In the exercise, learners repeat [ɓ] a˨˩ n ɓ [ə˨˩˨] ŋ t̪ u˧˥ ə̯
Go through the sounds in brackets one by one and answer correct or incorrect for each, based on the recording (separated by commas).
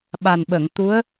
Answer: correct, correct